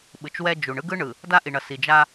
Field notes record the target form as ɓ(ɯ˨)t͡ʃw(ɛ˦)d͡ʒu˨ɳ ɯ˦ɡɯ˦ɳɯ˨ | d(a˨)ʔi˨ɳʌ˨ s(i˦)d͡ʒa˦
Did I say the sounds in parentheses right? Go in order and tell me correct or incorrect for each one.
correct, correct, incorrect: a˦, incorrect: i˨

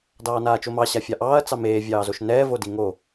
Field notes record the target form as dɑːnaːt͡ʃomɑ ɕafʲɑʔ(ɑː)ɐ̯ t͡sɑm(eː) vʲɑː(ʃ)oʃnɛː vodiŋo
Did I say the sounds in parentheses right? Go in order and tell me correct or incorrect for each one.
correct, correct, incorrect: z

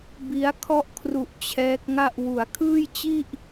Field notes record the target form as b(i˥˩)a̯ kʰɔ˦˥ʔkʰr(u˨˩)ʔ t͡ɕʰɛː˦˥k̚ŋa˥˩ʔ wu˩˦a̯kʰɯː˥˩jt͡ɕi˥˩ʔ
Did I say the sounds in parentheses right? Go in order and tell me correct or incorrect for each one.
incorrect: i˦˥, correct

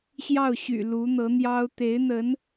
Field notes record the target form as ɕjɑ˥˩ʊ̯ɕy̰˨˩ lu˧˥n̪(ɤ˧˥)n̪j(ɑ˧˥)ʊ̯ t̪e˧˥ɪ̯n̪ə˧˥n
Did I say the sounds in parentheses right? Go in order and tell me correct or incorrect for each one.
correct, incorrect: ɑ˥

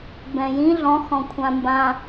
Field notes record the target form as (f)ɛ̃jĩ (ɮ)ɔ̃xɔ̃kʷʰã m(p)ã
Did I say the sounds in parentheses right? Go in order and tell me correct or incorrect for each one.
incorrect: b, correct, incorrect: b

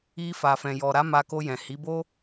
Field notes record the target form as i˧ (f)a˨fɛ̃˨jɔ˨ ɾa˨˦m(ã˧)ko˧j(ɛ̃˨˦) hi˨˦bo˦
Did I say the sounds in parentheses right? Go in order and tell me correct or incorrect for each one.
correct, incorrect: a˧, incorrect: ɛ̃˨

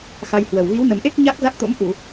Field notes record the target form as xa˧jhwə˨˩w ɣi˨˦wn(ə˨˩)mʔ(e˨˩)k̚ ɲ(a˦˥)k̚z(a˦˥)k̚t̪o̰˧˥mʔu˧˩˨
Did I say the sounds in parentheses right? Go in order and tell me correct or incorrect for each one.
correct, incorrect: e˦˥, correct, correct

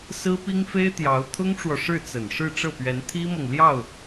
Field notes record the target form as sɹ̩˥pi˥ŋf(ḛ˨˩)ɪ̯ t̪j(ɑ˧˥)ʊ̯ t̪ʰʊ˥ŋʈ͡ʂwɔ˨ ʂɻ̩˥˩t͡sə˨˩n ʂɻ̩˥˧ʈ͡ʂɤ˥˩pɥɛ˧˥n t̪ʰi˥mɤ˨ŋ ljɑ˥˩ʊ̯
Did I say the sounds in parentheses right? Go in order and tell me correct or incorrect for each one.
incorrect: e˥, correct

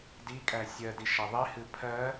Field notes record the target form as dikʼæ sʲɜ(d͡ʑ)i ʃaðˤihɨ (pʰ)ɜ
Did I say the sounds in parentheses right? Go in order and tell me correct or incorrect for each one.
incorrect: d, correct

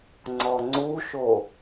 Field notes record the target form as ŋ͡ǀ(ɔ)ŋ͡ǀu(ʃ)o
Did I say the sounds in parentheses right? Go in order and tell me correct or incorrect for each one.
correct, correct

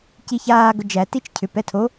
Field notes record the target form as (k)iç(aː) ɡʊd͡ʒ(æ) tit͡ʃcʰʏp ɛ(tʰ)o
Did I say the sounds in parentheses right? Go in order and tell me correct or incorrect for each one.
incorrect: c, correct, correct, correct

